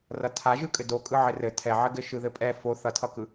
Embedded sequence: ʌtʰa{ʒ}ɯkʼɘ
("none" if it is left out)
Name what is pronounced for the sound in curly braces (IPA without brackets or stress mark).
ʒ